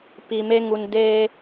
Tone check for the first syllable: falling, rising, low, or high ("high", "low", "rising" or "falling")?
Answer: low